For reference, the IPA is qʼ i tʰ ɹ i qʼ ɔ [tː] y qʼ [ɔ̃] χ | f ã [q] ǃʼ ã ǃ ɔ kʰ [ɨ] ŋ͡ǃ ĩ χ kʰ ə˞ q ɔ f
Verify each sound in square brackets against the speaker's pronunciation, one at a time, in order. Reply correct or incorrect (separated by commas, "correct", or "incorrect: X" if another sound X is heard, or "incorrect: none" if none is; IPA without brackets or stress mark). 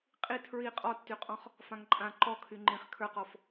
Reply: correct, correct, incorrect: ŋ, incorrect: y